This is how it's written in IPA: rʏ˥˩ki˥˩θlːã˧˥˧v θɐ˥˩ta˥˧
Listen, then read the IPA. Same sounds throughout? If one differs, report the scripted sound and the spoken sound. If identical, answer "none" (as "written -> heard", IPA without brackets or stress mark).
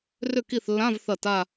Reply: none